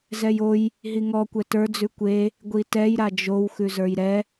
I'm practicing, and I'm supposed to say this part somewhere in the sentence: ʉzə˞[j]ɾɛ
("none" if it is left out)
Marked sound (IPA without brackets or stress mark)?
j